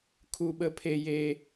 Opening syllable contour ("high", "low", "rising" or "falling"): high